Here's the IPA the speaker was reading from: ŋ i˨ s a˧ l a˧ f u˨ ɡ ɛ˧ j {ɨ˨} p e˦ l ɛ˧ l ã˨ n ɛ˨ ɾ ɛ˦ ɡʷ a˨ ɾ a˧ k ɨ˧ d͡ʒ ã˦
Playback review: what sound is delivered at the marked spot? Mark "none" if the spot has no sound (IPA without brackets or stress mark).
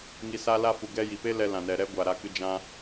i˨